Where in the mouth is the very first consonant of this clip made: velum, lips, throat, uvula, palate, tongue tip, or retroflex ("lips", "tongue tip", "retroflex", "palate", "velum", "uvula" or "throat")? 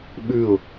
lips